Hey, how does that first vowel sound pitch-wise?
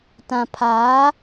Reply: low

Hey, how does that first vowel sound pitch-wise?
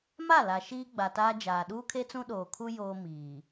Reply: falling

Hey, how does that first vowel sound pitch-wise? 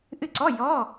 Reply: falling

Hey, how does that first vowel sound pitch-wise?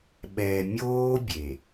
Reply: low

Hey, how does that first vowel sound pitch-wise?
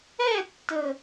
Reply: falling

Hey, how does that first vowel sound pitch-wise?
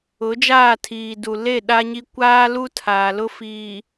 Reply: rising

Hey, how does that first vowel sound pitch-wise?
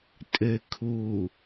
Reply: low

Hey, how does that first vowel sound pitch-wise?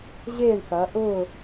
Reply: falling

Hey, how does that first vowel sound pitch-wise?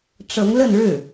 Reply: rising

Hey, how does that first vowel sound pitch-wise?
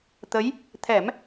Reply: rising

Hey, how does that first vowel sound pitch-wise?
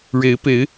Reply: rising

